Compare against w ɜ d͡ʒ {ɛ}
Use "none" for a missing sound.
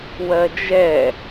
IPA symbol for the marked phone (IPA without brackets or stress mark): ɛ